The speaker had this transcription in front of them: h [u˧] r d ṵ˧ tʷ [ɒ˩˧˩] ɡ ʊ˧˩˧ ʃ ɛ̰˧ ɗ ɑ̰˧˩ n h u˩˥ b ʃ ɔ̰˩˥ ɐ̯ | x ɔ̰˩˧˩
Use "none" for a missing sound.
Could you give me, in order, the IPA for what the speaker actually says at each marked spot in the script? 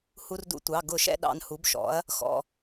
u˧, ɑ˩˧˩

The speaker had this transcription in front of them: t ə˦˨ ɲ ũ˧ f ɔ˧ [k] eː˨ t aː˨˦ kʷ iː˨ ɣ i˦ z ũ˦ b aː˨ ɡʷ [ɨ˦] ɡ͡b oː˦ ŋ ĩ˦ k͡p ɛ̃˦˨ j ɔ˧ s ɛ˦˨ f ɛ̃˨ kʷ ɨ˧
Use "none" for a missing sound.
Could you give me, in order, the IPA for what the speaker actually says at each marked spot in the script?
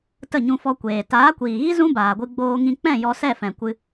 kʷ, ɨ˧

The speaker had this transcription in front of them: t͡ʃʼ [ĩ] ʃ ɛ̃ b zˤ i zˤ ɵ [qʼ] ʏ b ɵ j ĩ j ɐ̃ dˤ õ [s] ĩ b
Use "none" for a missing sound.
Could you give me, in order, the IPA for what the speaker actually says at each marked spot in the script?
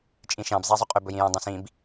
ĩ, qʼ, s

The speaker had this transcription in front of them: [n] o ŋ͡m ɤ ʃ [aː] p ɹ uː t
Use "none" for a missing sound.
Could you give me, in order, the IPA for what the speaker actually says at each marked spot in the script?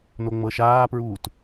n, aː

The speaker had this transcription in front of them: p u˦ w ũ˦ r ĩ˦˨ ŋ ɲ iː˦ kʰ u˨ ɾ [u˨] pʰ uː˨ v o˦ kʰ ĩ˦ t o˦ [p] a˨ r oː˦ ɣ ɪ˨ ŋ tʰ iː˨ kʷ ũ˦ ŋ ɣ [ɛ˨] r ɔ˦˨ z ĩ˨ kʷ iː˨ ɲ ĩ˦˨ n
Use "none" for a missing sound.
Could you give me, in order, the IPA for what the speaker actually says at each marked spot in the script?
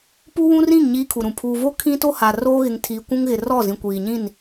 ũ˨, h, ɪ˨

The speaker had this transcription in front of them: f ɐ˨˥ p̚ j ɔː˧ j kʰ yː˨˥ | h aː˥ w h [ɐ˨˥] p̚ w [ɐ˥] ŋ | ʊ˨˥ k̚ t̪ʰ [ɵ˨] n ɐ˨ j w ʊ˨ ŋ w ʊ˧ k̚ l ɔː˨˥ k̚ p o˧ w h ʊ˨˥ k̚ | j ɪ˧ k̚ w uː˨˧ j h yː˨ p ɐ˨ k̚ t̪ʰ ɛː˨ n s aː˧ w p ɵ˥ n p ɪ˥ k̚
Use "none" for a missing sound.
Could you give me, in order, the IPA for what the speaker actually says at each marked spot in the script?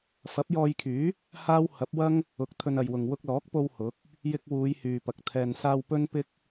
ɐ˨˥, ɐ˥, ɵ˧

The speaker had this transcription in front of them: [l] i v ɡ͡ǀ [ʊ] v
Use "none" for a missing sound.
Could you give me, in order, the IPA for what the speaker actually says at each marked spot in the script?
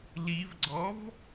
l, ɔ

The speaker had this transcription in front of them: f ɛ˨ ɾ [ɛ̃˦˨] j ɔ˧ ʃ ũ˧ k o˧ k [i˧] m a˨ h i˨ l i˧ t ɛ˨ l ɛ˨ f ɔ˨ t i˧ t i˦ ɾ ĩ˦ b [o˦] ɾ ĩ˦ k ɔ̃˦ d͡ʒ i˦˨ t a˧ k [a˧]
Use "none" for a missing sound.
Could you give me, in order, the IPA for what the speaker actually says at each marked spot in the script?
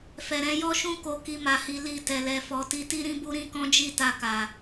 ɛ̃˧, i˧, u˦, a˨

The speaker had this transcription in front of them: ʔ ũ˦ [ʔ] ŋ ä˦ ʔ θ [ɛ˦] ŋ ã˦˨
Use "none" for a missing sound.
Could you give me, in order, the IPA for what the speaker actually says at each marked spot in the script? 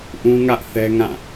none, ɛ˦

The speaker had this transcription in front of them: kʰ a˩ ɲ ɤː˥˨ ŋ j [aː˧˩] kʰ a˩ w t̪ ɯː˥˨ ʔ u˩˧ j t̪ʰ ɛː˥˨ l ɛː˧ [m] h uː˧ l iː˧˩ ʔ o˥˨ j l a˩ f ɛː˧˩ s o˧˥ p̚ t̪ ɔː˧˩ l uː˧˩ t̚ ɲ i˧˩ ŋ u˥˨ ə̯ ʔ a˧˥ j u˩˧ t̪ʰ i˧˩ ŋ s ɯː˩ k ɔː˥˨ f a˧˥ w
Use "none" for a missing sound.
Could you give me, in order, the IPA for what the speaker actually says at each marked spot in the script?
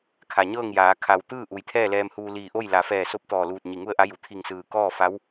aː˩˧, m

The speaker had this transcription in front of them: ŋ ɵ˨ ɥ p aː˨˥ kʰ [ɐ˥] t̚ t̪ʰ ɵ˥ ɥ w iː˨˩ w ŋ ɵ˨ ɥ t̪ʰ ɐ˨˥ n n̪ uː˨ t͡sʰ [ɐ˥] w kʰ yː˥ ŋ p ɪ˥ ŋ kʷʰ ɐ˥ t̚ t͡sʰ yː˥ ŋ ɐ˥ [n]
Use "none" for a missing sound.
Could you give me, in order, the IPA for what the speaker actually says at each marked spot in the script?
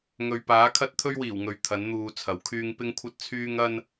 ɐ˥, ɐ˨˥, n

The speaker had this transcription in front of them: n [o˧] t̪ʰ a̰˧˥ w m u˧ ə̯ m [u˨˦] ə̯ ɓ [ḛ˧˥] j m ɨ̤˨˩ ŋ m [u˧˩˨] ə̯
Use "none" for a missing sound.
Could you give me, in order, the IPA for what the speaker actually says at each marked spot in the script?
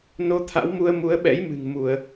o˧, u˨˦, ɛ̰˧˥, u˧˩˨

